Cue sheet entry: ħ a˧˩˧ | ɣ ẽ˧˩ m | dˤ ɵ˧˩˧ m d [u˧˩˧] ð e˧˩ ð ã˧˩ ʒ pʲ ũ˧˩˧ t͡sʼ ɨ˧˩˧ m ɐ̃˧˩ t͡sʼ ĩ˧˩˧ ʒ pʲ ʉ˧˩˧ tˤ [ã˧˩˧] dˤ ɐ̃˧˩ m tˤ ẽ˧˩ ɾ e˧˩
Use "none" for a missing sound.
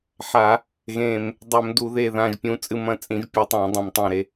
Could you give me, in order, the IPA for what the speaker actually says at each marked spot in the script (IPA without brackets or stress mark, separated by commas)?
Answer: u˧˩˧, ã˧˩˧